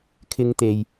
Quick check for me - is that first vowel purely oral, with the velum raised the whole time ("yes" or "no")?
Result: yes